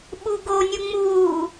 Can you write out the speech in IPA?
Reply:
ɓuɡonʲu ŋ͡muː

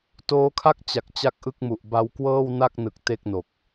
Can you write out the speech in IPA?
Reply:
toː˦˥kʰa˥˩k̚ t͡ɕa˨˩k̚ t͡ɕa˥˩k̚ʔɯ˥˩k̚mu˨˩ʔ ba˧wkwɤː˥˩wna˥˩k̚nɯ˨˩k̚ te˥˩k̚no˨˩k̚

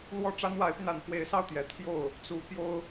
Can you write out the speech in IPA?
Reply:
lwɔ˥˩ʈ͡ʂa˥nwa˧˥ɪ̯py˧n a˨˩nxwe˧˥ɪ̯sɑ˥˩ʊ̯t̪jɛ˨˩ t̪ʰjo˥˩ʊ̯ | t͡su˧˥ pjo˥ʊ̯

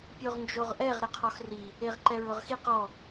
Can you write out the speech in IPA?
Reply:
pʲoʁnd͡ʒoʁʔɛʁ ɾɪqʰɔxri | eʁǃɛɹʊʁxiq ɔ

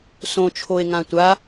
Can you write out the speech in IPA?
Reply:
sõt͡ʃʰoe̯ ŋãtʷa

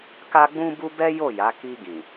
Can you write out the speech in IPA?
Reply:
ka˦ɡ͡bũ˦bu˦ bɛ˦jo˦˨ja˨˦ ki˧ɡĩ˨

